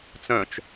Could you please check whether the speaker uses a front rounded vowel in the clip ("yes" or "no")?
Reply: yes